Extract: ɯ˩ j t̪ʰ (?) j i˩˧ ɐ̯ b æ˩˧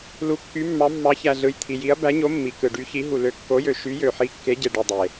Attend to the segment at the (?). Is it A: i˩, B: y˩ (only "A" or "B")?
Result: A